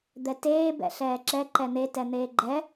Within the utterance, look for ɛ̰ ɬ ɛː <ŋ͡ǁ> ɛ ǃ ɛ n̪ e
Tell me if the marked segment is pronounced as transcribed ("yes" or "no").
no